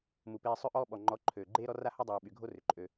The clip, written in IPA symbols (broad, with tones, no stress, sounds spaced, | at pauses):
m u˨ p eː˧ sˤ ø˦ ʔ ɔː˦ ɓ ɔ˨ ŋ͡ǃ ɔ˨˦ ǃʰ øː˨ ɡ͡ǃ eː˦ ɾ ɔ˦ r a˦ h o˦ dˤ yː˨ ɓ y˨ ɡʱ o˦ r ʏ˨ ǃʼ ø˧